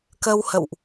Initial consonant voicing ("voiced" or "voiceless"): voiceless